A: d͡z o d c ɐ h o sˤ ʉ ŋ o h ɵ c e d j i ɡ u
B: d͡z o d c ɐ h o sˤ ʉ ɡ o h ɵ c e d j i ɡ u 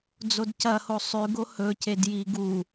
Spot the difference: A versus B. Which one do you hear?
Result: B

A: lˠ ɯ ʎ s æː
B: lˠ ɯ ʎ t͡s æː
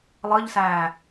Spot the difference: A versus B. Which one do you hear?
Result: A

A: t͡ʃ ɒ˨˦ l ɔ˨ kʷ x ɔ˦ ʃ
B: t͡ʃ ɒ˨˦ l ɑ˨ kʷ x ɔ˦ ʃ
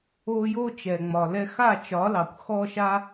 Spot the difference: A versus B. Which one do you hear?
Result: B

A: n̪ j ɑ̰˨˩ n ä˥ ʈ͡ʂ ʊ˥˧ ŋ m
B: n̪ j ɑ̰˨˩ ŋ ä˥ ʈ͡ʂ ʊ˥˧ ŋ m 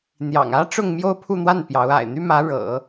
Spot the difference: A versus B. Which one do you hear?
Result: B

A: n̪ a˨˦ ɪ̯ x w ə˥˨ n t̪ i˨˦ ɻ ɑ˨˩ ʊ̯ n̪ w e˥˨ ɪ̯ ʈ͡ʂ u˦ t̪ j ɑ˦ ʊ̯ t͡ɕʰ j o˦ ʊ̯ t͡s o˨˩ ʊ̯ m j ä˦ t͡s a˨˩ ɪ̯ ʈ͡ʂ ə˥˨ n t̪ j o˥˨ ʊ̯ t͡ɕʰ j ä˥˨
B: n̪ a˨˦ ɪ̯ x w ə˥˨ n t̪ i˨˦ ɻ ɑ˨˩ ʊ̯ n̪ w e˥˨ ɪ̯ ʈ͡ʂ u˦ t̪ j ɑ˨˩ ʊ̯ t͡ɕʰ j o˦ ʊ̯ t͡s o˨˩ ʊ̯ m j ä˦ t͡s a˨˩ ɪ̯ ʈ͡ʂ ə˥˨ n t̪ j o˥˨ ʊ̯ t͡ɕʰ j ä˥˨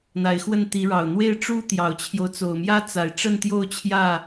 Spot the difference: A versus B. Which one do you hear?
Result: B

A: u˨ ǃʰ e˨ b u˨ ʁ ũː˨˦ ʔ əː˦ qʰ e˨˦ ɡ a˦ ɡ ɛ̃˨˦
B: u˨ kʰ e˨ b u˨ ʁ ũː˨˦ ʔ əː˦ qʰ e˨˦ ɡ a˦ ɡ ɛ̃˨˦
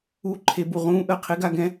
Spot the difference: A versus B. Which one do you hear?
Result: A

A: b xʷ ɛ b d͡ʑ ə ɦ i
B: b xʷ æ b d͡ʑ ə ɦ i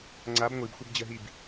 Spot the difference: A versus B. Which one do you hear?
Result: A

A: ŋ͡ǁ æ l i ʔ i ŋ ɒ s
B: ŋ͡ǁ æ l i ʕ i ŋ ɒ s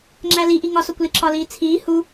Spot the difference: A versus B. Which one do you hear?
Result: A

